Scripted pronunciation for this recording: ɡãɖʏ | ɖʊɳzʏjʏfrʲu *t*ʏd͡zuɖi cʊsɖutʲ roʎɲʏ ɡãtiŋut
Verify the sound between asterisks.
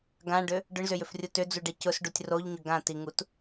correct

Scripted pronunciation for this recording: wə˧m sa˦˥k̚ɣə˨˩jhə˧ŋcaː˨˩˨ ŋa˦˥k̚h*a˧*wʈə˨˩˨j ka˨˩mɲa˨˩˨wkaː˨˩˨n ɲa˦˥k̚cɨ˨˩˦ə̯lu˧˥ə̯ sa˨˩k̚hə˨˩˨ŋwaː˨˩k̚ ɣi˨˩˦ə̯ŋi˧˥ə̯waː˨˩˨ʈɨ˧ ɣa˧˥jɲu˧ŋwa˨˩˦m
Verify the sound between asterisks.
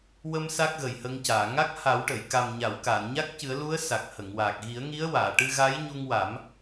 incorrect: a˨˩˦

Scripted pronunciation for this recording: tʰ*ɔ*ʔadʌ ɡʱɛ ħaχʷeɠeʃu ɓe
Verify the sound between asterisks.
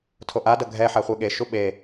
incorrect: o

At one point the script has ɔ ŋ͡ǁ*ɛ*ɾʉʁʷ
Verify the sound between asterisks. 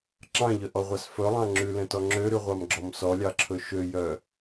incorrect: ø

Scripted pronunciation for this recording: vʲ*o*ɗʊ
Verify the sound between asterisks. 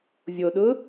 correct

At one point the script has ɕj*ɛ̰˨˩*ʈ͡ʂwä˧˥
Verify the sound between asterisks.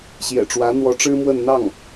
correct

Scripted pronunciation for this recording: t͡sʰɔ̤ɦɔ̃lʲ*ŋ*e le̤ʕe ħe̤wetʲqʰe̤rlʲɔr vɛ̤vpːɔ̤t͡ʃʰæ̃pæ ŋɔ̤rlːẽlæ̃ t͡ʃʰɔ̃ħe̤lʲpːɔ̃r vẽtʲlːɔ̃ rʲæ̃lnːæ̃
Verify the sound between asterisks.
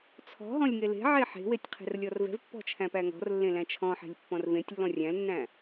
correct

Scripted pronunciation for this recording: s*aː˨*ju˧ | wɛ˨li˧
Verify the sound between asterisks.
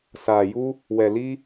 correct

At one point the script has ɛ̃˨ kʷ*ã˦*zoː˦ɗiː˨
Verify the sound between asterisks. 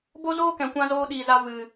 correct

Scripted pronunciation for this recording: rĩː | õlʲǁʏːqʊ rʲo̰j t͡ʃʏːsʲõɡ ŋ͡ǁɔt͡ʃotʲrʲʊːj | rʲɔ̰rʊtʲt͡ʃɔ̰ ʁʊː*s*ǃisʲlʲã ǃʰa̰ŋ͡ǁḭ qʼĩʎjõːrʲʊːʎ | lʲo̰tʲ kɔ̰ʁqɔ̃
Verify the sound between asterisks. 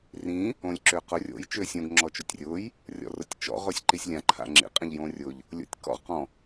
incorrect: sʲ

